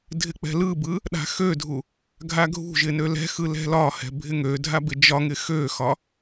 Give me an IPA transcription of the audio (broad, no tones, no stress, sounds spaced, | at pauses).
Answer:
dʱ ɪ k͡p ɛ̤ l ɯ b ɯ | ɗ a̤ x ø dʱ u | ɡʱ a ɡʱ ṳ ʒ ɪ n ø l ɛ̤ x ɯ l ɛ̤ l ɒ h ɛ̤ bʱ ɪ ŋ ø dʱ a b ɪ d͡ʒ ɒ ŋ ɪ x ø x ɒ